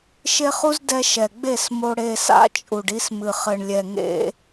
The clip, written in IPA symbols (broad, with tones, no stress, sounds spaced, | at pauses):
ʃ e˦ χ u˦ z d ɛ˧ ʃ ɛ˨ ɡ͡b e˦˨ s m o˧ ɽ e˧ s a̰˦ t͡ʃʼ u˨ ɖ i˧ s m ɨ˨ χ ɘ˨ ɳ lʲ ɛ˨ ŋ ḛ˧